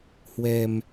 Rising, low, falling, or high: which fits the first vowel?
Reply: low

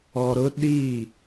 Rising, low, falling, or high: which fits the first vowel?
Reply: low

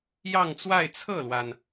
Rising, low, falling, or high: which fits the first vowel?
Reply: falling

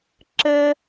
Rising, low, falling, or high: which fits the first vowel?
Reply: high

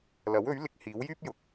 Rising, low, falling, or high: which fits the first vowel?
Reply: rising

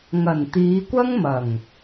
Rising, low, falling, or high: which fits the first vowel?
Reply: low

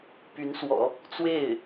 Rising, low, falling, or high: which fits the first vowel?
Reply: rising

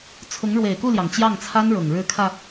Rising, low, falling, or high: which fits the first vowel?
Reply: rising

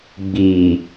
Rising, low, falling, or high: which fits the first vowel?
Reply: low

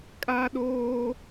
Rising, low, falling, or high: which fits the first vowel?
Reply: high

